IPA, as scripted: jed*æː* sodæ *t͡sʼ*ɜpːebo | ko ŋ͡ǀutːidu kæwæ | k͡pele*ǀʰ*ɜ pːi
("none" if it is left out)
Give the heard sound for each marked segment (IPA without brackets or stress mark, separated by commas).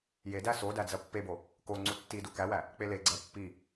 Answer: æ, d͡z, ɡ͡ǀ